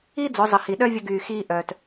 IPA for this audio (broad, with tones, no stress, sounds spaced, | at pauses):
i˥ d͡z o˩˧ zˤ ə˩ h i˩ ɗ œ˥ vʲ ə˧ ɡ yː˩ x iː˧ ʔ œː˩ t